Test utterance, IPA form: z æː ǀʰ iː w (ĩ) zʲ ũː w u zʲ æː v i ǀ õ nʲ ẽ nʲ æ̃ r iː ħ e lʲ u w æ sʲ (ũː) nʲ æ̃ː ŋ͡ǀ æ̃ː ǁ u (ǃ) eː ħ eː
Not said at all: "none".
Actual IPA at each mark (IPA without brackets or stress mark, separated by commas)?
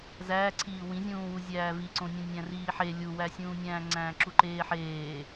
ĩ, ũː, ǃ